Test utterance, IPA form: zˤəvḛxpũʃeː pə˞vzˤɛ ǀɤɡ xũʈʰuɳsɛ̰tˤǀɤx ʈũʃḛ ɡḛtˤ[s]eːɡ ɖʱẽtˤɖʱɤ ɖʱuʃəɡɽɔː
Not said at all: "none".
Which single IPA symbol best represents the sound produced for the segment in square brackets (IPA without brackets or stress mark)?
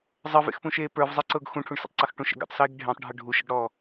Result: s